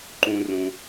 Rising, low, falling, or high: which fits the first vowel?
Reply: high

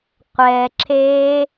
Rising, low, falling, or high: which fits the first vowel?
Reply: low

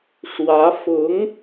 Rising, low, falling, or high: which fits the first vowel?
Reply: rising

